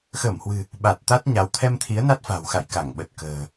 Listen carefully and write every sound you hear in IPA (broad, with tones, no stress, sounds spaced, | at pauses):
x əː˧˩ m h w ɨ̤˨˩ | ɓ a˨˩ t̚ t̪ a˦˥ t̚ ɲ a˨˦ w t̪ʰ ɛ˧ m t̪ʰ i˨˦ ə̯ n a˦˥ t̚ f a̤˨˩ w x a̰˧˨ j k a˧˩ ŋ ɓ ə˨˩ t̚ k ə̤ː˨˩